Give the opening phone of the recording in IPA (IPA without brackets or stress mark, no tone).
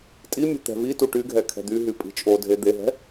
tʼ